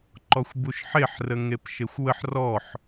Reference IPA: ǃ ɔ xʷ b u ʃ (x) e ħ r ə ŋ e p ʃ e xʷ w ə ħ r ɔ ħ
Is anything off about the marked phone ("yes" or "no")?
yes